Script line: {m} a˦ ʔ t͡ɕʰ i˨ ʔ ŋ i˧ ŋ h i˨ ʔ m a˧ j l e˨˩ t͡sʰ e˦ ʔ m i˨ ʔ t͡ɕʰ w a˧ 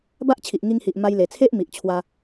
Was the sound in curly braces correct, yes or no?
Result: no